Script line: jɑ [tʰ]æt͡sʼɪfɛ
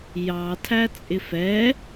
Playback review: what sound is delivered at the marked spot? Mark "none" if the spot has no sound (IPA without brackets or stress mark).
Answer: tʰ